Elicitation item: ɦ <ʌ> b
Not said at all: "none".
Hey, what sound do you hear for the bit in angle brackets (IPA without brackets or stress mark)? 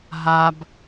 a